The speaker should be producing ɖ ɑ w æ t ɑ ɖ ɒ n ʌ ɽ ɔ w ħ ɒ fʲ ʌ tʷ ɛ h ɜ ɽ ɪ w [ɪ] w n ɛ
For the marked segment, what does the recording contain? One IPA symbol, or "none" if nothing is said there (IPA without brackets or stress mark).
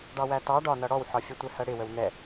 ə